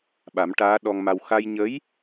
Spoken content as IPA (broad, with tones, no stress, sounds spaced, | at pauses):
ɓ a˨˩˦ m ʈ aː˧˥ ɗ ɔ˧ ŋ m a˧ w x a˧ j ɲ ə˧˥ j